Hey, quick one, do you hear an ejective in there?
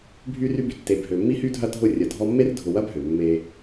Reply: no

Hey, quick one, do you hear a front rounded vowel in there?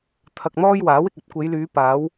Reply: yes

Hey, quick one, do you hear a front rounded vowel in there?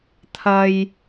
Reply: no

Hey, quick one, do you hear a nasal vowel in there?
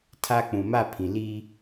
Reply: yes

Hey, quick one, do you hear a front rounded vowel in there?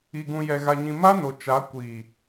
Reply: no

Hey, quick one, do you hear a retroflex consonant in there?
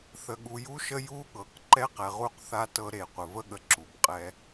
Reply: no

